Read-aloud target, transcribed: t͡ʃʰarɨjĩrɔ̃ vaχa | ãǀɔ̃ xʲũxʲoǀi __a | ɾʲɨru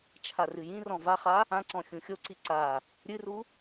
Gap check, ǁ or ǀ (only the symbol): ǀ